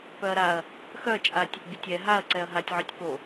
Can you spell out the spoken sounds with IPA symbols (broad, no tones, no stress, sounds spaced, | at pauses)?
p œ ɐ̯ ɾ a ɐ̯ | x œ t͡ʃʼ a tʲ | bʲ ɛ tʲ ɛ ɦ a ɐ̯ ǀ ɛ ɐ̯ ɦ a tʲ ʕ œ tʲ p o